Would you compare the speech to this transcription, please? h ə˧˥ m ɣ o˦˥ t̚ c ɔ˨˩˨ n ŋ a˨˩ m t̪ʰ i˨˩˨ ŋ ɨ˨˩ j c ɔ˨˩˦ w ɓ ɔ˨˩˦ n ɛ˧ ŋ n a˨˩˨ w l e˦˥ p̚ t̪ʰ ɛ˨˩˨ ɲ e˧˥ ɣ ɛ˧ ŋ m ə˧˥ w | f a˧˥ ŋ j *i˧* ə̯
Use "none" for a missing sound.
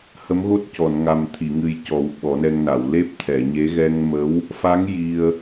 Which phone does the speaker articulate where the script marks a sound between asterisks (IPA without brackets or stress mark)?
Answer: i˧